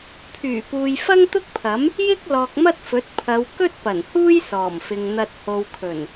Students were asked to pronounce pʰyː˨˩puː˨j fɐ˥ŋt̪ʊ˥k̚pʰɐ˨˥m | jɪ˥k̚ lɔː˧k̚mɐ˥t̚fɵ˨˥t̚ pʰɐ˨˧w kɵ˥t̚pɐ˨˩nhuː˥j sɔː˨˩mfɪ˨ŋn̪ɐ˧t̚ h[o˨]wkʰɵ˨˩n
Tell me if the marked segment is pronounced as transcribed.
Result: yes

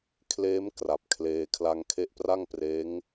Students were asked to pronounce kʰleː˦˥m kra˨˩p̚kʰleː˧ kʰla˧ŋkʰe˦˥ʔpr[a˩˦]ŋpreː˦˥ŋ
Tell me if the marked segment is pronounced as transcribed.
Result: no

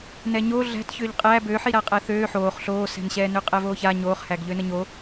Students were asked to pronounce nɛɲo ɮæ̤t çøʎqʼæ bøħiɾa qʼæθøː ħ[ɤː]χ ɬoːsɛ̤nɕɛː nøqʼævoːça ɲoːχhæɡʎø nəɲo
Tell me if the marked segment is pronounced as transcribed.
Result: no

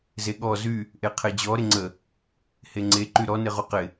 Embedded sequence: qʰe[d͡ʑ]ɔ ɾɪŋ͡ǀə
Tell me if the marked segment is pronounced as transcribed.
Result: yes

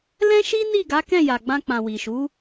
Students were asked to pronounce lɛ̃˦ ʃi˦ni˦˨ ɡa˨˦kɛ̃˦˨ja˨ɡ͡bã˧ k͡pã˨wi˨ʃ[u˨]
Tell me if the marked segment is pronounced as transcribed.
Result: no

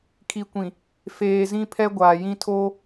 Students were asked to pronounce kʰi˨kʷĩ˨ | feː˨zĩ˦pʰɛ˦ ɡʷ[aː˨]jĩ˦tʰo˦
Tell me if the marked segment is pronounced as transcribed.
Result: yes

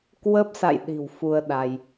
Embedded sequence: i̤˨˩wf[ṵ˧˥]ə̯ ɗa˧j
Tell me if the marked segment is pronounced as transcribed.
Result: no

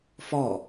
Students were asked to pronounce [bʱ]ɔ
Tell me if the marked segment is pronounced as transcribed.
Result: no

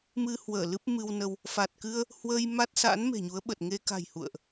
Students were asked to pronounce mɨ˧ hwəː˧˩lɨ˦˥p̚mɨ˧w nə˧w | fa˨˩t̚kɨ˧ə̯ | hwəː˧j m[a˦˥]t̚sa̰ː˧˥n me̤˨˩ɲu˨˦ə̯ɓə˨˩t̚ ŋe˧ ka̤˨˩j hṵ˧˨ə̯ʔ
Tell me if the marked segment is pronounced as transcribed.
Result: yes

